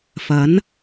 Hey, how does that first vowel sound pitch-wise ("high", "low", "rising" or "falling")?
rising